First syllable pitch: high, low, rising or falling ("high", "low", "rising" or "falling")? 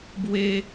high